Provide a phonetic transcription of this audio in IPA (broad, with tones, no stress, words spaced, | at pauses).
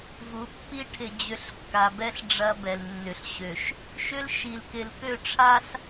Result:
vu˨˦pːi˦ ʈʰɪ˨d͡ʑʏ˨˦ɬkːa˨bɛ˦ɬ ɖ͡ʐɐ˦bɛ˨l nːʏ˨ɬɕø˨ʃ | ʃʏ˦l ʃi˨lkɪ˨l kø˦˨ ʈ͡ʂʰa˦ɬ